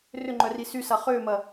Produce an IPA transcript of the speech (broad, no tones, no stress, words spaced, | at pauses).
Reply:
rʏŋ͡ǃœri sysa χʏːmɐ